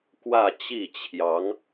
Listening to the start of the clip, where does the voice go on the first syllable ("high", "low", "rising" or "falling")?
falling